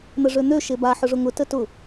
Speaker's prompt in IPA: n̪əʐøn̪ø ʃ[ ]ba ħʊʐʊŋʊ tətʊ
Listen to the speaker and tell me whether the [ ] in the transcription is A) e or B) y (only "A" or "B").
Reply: A